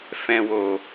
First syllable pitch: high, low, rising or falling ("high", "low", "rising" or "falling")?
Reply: low